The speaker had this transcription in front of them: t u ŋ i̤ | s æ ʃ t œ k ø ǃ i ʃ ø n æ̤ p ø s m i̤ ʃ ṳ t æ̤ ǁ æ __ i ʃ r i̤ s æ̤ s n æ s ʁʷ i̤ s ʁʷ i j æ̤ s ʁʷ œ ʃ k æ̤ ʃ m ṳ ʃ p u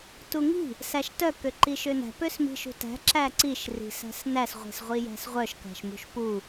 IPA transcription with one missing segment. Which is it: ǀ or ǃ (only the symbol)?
ǀ